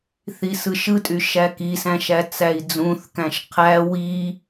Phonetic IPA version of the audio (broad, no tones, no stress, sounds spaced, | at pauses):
θ i s ɯ ʃ ɯ tʼ y ʃ æ k i s æ̃ ʃ æ t͡s æ i̯ d͡z ũ θ k æ̃ ʃ qʰ æ w i